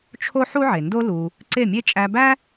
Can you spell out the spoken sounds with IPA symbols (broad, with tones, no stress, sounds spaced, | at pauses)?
t͡ʃʰ o˦ ħ u˦ ʕ e˨ n d o˦ l u˧ | ǀ e˦˨ mʲ e˦ t͡ʃʼ æ˧ b æ˦